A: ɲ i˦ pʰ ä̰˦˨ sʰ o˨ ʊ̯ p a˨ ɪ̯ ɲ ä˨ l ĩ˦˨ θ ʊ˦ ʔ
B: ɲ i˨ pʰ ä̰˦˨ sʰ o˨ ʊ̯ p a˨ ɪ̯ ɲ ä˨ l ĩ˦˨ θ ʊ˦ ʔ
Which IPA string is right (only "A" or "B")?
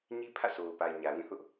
A